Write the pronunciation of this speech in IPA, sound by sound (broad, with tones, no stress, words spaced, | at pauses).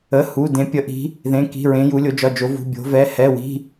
ə˧˥˧hu˧˥˧ dẽ˧˥pʲə˧˥ ʔi̤˧˥ | ðẽ˧˥˧ki̤˧˥˧ɹẽ˧˥ ju˧˥lʲo˧˥d͡ʒɒ˧˥˧d͡ʒo˧˥ vṳ˧˥˧bʲo̤˧˥vɛ˧˥˧ hɛ˧˥˧wi̤˧˥˧